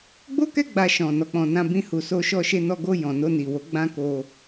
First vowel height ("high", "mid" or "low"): mid